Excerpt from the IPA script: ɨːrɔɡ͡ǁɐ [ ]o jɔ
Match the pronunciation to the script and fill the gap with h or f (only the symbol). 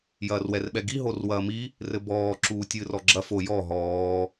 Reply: f